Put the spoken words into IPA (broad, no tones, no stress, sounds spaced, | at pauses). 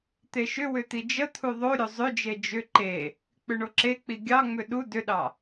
t̪ e ʃ ʏ w ʏ t̪ i d͡ʒ ə t̪ʰ u ðˤ o ɾʲ o zˤ ʏ d͡ʒ e d͡ʒ ʏ ǃ e | k͡p ʏ ɳ o ǁ e k͡p i ɡʲ ɑ ŋ͡m ʏ ɗ u d ʏ ɗ ɑ